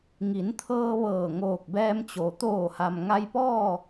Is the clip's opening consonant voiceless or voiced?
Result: voiced